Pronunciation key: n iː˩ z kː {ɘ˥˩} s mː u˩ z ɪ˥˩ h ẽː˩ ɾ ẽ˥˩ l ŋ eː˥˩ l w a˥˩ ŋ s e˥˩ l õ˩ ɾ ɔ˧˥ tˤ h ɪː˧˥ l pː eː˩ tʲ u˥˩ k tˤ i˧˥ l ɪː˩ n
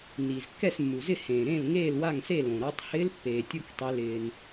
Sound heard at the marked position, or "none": ɛ˥˩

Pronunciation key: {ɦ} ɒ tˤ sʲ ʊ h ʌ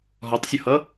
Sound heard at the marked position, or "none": ɦ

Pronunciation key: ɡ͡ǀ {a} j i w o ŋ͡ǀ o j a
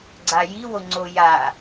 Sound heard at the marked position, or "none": a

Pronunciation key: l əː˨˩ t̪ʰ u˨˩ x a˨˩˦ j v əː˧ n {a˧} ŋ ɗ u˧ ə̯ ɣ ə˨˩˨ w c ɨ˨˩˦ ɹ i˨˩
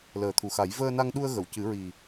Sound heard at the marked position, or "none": a˧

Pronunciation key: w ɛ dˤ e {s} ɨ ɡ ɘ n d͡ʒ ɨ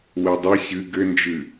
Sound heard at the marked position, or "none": ɕ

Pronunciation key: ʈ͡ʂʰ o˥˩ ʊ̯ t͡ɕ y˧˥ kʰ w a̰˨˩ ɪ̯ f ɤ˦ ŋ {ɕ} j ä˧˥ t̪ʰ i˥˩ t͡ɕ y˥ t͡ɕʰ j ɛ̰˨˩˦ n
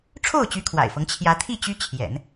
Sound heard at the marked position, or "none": t͡ɕʰ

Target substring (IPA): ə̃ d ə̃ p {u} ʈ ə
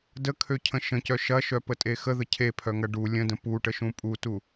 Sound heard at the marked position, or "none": u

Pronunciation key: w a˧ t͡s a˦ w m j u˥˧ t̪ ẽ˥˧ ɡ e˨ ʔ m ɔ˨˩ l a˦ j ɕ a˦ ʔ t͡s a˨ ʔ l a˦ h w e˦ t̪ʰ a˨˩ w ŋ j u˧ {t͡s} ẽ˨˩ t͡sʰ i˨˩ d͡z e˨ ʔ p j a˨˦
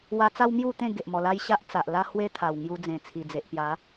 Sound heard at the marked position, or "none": d͡z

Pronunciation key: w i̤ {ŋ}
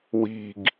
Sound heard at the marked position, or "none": ɡ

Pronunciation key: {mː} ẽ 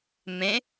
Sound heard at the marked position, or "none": m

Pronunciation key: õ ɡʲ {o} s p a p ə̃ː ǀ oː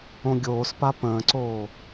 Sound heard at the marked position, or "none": oː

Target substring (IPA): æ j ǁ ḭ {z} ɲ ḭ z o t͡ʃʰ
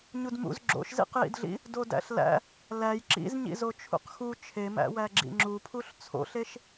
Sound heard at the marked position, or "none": z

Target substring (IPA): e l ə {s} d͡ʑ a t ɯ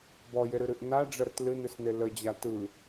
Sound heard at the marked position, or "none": none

